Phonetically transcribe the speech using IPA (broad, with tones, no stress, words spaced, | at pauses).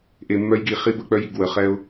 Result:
ʔe˨mːœ˦jɡi˨ χi˦bə˦˨k͡pœ˦ji˨ɡ wə˨χɛ˦ʊ̯